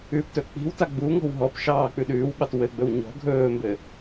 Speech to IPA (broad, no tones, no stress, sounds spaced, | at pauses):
ʉ p t ɵ k͡p i̤ w t a ɡ͡b u ŋ ɔ̤ w ɦ ɔ p ʃ ɑː k͡p ʉ ɗ ʉː w ɓ ɑ t w ɘ ɡ͡b ɵ w ɲ ɔ̤ ɡʱ ɵː m b ɘ